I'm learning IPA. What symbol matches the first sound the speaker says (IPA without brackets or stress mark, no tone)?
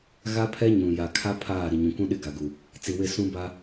ɣ